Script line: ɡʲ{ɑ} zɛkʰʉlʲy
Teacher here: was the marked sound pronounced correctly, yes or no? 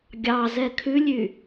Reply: yes